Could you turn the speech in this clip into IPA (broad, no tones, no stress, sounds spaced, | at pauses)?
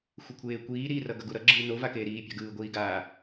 xʷ e kʷʰ eː kʷ iː ɾ i r ʌ ɡ ʌ ɡ u ɾ ʌ ɡ͡ǁ ɯː n o v a k eː ɾ iː pʲ a̤ ɡ ɯː ɡʷ iː ɡ aː